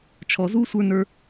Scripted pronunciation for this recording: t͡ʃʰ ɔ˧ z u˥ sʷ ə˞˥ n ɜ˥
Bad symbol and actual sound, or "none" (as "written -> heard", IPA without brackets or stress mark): ɜ˥ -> ə˞˥